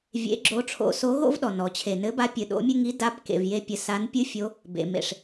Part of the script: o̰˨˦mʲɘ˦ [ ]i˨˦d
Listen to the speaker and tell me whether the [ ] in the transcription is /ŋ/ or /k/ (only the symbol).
ŋ